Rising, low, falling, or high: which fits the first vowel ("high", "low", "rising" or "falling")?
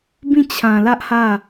falling